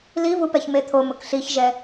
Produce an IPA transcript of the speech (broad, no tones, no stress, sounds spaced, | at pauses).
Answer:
l i v u p ɛ ç m e t̪ʰ o m ʊ k ɬ i ç ʒ ɛ